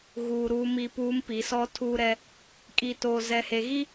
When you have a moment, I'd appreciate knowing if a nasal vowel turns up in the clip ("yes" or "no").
no